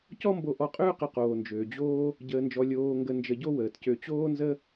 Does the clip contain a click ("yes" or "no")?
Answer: no